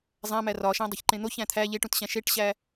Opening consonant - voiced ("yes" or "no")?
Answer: yes